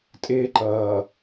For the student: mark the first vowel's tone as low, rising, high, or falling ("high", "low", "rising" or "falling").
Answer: high